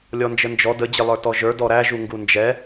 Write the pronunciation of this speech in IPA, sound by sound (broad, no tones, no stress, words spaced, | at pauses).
lʲɔnd͡ʒənd͡ʒɔ də d͡ʑɪlˠə˞tɔʒə˞ dɔɾæ ʒuŋɡund͡ʒɛ